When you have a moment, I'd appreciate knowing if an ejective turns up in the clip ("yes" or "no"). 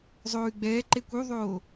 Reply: no